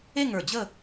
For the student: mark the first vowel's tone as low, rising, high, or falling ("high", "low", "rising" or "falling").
falling